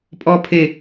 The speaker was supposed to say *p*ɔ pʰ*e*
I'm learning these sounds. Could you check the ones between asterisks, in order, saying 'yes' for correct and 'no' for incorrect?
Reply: no, yes

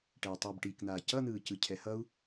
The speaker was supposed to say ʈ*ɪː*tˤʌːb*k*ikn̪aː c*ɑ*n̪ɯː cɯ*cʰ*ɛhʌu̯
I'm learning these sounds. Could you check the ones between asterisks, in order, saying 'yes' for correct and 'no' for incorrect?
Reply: no, no, no, yes

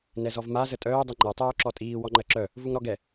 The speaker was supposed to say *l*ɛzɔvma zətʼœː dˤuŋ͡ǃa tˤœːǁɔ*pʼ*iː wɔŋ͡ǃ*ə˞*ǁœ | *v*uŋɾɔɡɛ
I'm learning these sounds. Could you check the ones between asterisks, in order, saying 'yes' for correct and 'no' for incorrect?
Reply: no, no, no, yes

